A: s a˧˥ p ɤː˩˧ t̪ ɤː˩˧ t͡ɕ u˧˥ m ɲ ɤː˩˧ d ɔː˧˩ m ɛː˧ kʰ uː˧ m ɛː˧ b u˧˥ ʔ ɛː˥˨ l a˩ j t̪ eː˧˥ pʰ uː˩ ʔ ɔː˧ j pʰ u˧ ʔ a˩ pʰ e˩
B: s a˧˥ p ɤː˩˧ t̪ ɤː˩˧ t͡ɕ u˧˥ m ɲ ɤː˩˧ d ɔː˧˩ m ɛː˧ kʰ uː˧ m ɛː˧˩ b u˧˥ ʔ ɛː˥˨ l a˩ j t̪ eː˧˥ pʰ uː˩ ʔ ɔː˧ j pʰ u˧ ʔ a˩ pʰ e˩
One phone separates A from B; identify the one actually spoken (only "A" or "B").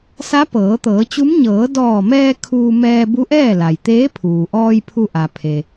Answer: A